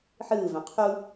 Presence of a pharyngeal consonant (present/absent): present